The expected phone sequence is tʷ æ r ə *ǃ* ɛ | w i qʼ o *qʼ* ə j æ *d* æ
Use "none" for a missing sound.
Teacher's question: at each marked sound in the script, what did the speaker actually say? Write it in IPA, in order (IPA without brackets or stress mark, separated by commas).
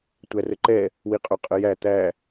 ǃ, qʼ, t̪